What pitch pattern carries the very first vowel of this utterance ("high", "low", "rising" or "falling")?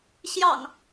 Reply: low